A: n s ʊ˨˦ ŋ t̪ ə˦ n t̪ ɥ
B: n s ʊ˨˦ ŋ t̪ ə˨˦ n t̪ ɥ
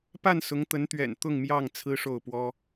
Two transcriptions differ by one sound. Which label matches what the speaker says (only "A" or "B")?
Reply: B